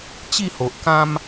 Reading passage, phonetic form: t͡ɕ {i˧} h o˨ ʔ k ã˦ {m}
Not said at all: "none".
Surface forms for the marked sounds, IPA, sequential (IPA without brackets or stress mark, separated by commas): i˥˧, m